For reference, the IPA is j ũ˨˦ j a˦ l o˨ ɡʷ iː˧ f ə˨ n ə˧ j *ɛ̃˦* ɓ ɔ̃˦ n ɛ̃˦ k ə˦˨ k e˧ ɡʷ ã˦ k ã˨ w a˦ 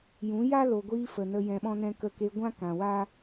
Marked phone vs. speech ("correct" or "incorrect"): incorrect